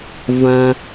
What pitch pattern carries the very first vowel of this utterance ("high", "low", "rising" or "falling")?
low